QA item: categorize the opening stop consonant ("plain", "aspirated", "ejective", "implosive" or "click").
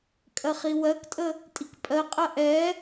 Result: ejective